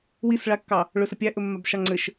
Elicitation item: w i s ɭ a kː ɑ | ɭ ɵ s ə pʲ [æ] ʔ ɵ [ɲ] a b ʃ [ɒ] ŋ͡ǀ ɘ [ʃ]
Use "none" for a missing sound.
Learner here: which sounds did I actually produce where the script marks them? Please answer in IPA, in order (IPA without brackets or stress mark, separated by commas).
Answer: æ, mː, ɑ, ʃ